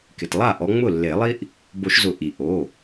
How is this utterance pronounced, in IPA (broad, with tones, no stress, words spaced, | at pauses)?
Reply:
kɪ˩tlˠa˥˩ʔɔ˨˦ ŋ͡mʊ˥˩lːe˨˩˦lˠi˥ʔ | bo˨˩˦ʃzʊ˨˩˦ ʔi˩ ʔo˩˧˩